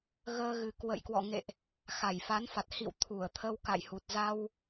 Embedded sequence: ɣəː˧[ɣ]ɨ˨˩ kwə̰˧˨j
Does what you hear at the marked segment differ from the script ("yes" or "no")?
no